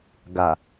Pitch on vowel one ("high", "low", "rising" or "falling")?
low